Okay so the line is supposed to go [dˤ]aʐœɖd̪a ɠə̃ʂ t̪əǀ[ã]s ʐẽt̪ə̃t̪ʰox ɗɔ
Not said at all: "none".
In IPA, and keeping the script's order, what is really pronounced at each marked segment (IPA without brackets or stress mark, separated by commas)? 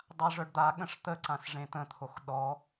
dˤ, ã